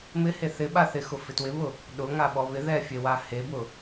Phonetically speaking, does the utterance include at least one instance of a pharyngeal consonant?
no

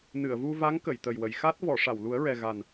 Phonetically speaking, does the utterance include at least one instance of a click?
no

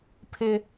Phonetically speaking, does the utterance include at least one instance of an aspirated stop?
yes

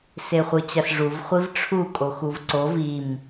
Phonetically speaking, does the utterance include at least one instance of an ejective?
yes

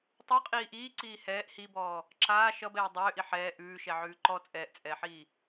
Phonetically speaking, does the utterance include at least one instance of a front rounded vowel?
yes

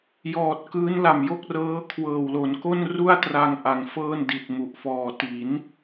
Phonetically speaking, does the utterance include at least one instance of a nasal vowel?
no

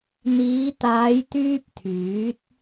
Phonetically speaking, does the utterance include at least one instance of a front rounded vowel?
yes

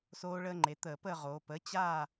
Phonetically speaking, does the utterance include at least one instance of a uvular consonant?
yes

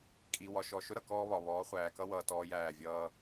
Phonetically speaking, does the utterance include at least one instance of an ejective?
yes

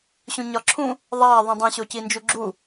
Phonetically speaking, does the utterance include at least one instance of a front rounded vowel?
no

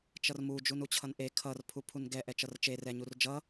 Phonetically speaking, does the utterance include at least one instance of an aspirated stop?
yes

